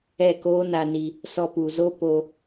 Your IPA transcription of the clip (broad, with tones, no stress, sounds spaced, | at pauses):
ɛ˦˨ k oː˦ n a˧ n i˧ | s ɔ˧ p u˨ z o˦ p o˧